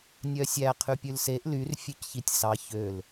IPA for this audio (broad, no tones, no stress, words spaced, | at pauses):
nʲœsʲæ qʰypʲʉlseʔ lyr fʲʉcçitʲsɑ çøl